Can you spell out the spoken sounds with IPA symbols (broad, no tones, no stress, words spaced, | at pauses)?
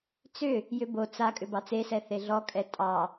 t͡sʏ | jʏbo t͡sa kʼʏbɑt͡sesɛ θeɮɔkʼɛ tʼɑ